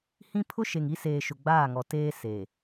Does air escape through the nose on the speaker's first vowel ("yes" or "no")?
yes